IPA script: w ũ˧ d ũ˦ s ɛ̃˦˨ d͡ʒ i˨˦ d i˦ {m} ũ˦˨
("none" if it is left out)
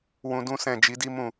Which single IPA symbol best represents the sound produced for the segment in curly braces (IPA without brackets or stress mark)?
m